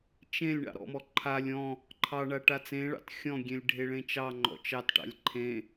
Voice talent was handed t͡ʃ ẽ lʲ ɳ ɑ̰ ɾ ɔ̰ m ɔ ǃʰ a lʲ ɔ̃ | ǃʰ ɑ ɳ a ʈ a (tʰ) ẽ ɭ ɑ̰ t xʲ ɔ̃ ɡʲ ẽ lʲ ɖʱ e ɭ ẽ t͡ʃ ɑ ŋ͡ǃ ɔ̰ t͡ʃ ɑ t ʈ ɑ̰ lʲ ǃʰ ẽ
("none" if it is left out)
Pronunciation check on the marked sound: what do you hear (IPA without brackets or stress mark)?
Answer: t͡s